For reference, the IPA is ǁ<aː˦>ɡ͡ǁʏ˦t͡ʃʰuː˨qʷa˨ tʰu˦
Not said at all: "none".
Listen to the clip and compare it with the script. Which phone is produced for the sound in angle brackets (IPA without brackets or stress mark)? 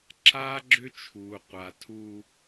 aː˦